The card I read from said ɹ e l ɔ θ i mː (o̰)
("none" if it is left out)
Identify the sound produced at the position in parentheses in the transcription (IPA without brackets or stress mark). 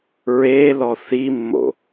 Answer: o̰